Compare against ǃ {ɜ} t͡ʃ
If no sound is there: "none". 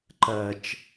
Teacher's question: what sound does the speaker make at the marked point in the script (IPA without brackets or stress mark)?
ɜ